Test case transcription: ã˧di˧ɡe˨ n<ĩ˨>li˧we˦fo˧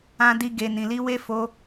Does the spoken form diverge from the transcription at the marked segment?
no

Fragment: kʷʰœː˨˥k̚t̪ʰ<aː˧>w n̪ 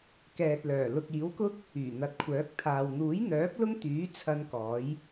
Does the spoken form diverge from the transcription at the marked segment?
yes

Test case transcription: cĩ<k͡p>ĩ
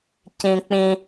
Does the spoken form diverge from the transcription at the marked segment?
no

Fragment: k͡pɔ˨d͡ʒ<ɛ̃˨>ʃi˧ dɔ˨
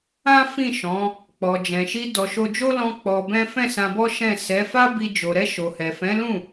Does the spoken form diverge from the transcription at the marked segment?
no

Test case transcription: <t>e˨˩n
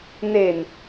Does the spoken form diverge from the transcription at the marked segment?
yes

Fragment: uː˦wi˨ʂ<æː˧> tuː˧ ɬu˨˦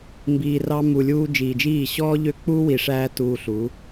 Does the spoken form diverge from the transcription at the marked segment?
no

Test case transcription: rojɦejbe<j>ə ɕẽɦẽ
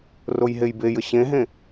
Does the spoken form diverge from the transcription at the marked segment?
no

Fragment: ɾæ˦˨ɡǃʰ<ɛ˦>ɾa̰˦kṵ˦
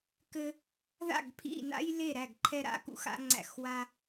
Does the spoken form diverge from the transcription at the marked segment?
no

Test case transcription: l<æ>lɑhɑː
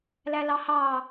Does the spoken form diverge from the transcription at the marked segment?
no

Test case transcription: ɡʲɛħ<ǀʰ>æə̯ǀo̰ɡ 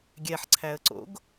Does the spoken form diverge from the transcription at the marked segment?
no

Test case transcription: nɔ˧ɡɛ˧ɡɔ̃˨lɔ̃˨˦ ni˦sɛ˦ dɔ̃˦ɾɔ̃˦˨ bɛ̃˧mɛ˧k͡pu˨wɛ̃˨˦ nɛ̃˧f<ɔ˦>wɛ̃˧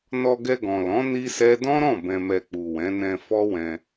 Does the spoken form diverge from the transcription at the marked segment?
no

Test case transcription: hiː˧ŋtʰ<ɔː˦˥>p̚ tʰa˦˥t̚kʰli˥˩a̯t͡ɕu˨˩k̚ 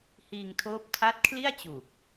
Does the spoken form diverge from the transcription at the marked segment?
yes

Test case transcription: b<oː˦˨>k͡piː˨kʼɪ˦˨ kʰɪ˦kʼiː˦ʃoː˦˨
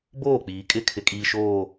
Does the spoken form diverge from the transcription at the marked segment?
no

